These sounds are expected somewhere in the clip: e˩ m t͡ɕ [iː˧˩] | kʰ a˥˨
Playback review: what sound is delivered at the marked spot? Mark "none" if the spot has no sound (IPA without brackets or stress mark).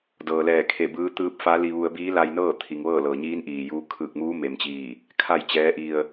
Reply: iː˧˩